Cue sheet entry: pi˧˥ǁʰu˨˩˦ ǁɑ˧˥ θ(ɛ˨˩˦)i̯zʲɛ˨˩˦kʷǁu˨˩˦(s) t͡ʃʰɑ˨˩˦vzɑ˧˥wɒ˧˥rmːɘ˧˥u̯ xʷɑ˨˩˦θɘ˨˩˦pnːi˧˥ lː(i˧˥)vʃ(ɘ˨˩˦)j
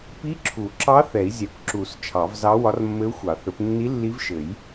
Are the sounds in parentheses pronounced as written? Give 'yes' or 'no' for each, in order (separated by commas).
yes, yes, yes, yes